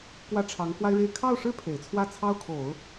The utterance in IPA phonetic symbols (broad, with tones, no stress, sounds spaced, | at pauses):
k w ä˥˩ ʈ͡ʂʰ ɑ˧˥ ŋ k w a˥ ɪ̯ ɻ e˥˧ ɪ̯ kʰ ɑ˥˩ ʊ̯ ʂ ɻ̩˥ pʰ e˨˩ ɪ̯ t͡sʰ w ä˥˩ t͡sʰ ɑ˥ ʊ̯ kʰ o˨˩˦ ʊ̯